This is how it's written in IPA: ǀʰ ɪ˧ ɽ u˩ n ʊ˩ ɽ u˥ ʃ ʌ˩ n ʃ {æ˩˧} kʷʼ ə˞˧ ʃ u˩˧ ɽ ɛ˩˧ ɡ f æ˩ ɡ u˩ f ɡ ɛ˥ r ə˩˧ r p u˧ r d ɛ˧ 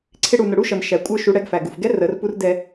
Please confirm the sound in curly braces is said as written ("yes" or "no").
no